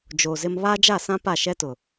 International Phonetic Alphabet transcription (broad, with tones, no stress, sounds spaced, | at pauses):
d͡ʒ o˨ z ɪ˦ m β aː˦ d͡ʒ a˦˨ s ã˦ p a˦˨ ʃ ɛ˦ t ʊ˨